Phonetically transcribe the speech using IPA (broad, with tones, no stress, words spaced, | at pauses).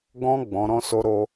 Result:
ɡɔ̃˦ ɡ͡bɔ̃˧ɾɔ̃˦so˦ɾo˦